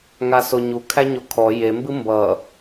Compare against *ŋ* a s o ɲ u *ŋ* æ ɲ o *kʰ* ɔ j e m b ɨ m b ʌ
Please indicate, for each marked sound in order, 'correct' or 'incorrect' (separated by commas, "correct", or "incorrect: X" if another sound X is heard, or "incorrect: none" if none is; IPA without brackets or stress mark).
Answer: correct, incorrect: kʰ, correct